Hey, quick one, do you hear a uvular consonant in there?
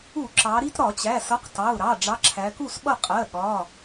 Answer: yes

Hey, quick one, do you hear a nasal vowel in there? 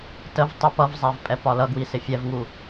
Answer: no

